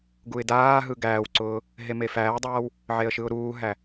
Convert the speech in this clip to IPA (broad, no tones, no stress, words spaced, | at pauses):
ɡuɪ̯daːɦɯ ɡæːwǀʊː | ɦemefæːdˤaːw | ʕeə̯ʃɯʊ̯ɾuːɦæ